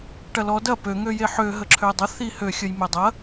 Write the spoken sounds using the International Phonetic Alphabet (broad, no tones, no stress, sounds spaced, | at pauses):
ʈ ɐ l ɔ d ɐ p ø ŋ ø j e ħ ø ɦ ə ǁʰ ø dˤ ə θ i h ø xʲ ə j m e dˤ ɐ